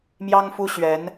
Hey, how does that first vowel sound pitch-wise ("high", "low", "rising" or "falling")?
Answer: high